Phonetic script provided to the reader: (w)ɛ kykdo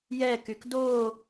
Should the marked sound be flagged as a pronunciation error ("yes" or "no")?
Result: yes